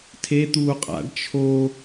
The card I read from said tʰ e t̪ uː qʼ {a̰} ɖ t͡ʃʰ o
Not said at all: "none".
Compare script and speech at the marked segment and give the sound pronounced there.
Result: a̰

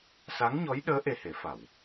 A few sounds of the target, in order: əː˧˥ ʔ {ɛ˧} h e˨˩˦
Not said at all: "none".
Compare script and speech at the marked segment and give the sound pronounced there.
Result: e˧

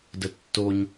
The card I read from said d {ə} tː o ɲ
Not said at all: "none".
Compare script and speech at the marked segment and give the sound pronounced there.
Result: ə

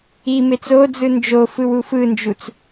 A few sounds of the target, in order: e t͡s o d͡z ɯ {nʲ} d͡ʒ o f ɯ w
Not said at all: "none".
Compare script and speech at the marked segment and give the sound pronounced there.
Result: n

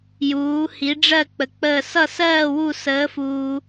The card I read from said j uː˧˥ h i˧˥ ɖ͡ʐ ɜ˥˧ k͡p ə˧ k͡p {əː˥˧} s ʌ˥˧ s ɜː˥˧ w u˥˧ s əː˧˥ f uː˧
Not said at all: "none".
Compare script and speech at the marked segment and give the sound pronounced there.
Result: əː˥˧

